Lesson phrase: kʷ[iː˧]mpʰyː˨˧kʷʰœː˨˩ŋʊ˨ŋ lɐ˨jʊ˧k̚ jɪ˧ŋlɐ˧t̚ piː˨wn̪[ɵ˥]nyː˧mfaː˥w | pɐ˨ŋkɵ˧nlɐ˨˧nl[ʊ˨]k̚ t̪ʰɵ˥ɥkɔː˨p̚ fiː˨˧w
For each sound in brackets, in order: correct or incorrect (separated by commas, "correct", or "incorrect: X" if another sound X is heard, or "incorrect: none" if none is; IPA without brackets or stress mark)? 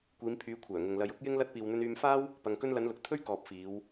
incorrect: iː˨˧, incorrect: ɵ˧, correct